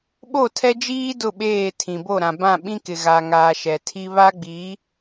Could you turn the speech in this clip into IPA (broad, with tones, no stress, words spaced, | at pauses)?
ɓo˦˨tʰɛ˦d͡ʒiː˦ dʊ˦˨ɓeː˦˨tʰĩ˨ bo˦˨ɾã˨ bã˦˨ɓĩ˦kɪ˨ ɣa˨ŋaː˨ ʃɛ˨tʰi˦ βa˦ɡ͡bi˨˦